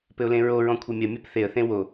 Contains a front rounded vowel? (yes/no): no